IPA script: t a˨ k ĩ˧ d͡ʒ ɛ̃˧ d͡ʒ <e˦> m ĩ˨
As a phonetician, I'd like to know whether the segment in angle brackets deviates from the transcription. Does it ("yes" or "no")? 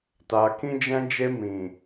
yes